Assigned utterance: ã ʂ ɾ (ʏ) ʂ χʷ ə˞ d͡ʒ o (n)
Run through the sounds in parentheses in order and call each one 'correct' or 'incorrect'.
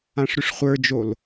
correct, incorrect: l

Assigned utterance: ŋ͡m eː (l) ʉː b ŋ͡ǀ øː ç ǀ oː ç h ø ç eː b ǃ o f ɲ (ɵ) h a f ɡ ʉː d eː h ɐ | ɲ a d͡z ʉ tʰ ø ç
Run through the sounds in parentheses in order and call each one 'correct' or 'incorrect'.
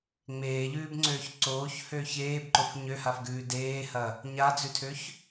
incorrect: ʎ, incorrect: ø

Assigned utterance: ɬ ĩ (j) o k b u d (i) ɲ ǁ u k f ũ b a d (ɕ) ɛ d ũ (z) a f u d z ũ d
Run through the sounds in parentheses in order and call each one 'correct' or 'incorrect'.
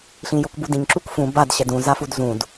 correct, incorrect: ĩ, correct, correct

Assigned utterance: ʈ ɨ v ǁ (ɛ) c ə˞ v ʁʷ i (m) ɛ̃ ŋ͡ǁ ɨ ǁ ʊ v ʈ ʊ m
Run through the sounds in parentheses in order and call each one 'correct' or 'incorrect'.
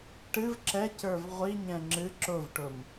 correct, incorrect: ɲ

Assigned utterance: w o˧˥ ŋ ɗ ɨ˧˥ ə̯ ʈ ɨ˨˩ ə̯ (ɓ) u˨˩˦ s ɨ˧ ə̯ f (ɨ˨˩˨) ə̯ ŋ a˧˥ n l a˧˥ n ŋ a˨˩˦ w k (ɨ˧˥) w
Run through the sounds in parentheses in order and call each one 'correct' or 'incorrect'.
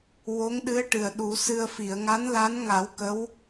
incorrect: ɗ, incorrect: i˨˩˨, incorrect: ə˧˥

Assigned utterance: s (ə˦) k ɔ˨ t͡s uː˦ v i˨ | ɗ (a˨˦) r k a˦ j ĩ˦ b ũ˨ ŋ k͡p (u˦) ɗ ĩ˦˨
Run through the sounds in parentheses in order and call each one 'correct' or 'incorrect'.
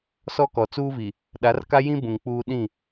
incorrect: ɔ˦, correct, incorrect: uː˦

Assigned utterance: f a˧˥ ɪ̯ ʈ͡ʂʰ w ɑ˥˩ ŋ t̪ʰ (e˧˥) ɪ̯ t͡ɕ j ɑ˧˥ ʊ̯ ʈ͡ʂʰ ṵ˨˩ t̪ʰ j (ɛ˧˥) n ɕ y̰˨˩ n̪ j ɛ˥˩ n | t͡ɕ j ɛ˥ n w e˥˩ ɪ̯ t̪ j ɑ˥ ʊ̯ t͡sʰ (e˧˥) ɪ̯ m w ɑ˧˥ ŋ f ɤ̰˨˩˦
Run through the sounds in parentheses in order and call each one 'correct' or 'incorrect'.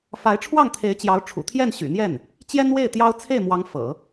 correct, incorrect: ɛ˥˩, incorrect: e˥˩

